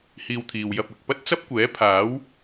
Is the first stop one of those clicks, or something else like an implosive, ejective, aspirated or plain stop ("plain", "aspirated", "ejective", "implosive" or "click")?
aspirated